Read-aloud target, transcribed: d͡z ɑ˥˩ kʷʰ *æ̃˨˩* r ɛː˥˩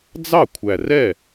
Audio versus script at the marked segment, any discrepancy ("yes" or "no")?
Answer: yes